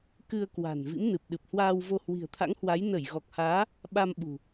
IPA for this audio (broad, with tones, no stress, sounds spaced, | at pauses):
k ɨ˧ ə̯ k w a̤˨˩ n v ḭ˧˥ m n ɨ˨˩ p̚ ɗ ɨ˨˩ p̚ h w aː˧ w v o˧ h w i̤˨˩ ə̯ t̪ʰ a̰˧˥ ŋ h w a˨˦ j n ə˧˩ j ɣ ɔ˨˩ k̚ h aː˨˦ | ɓ a˧ m ɓ ṳ˨˩